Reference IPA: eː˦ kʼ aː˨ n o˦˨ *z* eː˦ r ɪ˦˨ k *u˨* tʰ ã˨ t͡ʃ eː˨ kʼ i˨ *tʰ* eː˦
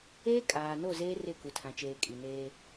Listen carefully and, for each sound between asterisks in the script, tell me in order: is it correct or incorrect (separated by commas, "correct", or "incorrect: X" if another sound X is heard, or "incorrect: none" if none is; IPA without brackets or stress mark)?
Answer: correct, correct, incorrect: n